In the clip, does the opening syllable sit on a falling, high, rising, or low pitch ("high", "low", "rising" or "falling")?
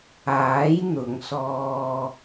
rising